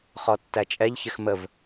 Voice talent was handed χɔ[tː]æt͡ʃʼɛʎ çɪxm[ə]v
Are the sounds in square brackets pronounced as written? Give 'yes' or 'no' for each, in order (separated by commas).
yes, yes